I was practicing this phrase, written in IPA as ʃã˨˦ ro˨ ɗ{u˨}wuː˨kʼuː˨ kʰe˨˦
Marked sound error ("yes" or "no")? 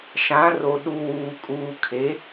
no